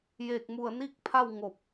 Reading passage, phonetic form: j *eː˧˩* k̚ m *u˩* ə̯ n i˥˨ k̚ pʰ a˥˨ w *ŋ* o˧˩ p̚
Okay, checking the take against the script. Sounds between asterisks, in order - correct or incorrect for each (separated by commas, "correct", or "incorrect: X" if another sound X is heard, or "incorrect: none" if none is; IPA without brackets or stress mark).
correct, incorrect: u˧˩, correct